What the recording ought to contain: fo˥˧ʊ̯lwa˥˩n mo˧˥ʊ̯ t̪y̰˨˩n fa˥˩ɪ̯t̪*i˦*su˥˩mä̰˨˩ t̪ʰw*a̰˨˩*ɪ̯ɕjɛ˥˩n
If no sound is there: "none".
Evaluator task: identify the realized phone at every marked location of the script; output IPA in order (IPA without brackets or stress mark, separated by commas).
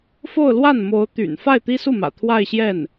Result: i˥, a˥˧